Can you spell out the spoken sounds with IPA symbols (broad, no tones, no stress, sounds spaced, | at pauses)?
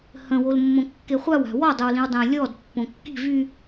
h ə̃ w o l mː õ kː e χʷ a w a̤ w ɔ dˤ o w l ĩ w dˤ ə̃ː lʲ ɔː d pː õ kː i̤ v y